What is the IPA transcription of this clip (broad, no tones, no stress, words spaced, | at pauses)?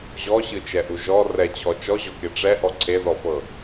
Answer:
ʑɔɕɯt͡ʃɛʔu ʒɔ rɛt͡ɕʰɔ t͡ʃɔʑɔke ʈ͡ʂɛʔɔ ǀʰeðɔfɤ